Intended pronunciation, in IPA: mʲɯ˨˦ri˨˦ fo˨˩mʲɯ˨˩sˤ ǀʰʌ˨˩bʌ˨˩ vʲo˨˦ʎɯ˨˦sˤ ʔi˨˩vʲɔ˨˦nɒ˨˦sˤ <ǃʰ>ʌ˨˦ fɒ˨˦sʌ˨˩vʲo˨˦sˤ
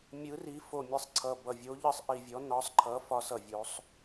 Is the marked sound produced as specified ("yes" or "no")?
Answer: yes